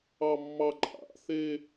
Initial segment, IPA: ɑ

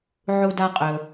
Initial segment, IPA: ʕ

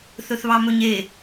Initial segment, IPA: θ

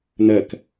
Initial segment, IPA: n̪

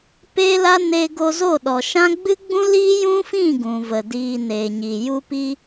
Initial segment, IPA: p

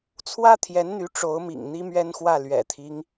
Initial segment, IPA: t͡sʰ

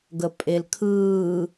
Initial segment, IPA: ɡ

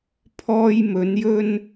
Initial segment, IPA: pʰ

